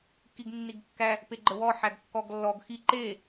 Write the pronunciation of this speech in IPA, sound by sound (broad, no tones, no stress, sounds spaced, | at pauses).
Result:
k i ɡ nː i ɡ kː æ | p e ɡ͡ǃ ə w ɔ ħ æ ɡ kː ɔ ɡ lː ɔ ɡ x i ǃ e